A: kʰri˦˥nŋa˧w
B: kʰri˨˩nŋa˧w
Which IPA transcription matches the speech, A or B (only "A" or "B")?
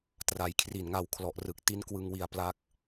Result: B